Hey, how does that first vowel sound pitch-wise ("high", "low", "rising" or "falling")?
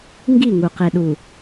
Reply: falling